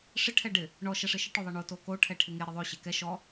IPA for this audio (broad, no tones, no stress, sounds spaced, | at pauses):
ʂ ɪ ʈʰ ɛ ɖ ɪ | ɳ ɔ ʃ ɛ ʂ ɪ ʃ ɪ ʈ o ðˤ ɛ ɳ o t o k o ʈʰ ɛ ʈʰ ɪ ŋ e ɾ ɪ ðˤ o ɕ e k ɛ ʃ ɔ